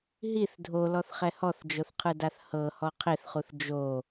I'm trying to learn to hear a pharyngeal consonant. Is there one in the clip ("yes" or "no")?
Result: no